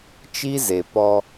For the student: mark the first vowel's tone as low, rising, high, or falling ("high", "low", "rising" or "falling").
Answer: high